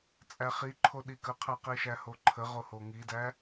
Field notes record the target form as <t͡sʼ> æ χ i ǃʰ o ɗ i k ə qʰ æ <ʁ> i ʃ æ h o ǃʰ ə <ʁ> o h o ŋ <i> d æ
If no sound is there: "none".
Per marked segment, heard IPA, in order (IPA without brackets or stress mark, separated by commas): t͡sʼ, q, ʁ, i